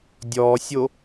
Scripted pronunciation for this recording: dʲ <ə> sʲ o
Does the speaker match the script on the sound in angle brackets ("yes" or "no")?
no